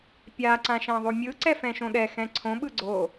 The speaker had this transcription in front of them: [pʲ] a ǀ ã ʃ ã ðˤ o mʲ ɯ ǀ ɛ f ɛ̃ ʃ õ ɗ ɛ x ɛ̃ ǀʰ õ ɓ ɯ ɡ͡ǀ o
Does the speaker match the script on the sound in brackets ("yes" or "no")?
yes